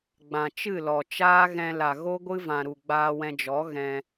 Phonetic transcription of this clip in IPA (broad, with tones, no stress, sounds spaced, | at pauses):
ɡ͡b ã˨ t͡ʃ ɨ˦˨ l ɔ˨ t͡ʃ aː˦ ɣ ɛ̃˧ l a˨ ɣ o˦ ɡʷ ɨ˦ v ã˨ ɾ u˨ ɡ͡b aː˧ w ɛ̃˧ d͡ʒ ɔ˨˦ ɣ ɛ̃˧